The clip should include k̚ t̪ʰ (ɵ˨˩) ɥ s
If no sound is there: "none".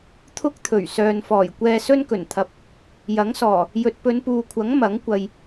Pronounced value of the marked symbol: ɵ˨˩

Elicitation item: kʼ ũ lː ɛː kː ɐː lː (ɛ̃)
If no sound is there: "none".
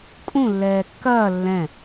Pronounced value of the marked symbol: ɛ̃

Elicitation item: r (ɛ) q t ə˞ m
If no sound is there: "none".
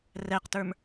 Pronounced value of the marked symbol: ɛ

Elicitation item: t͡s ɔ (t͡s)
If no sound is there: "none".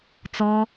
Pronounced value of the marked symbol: none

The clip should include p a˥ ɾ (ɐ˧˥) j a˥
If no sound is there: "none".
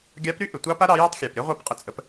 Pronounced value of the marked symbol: ɑ˧˥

